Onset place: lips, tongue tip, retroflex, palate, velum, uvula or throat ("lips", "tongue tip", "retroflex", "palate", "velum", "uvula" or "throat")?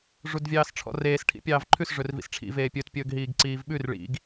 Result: retroflex